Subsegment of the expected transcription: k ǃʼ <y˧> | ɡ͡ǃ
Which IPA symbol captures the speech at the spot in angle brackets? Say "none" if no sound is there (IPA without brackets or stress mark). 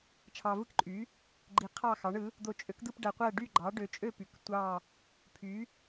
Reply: y˨˥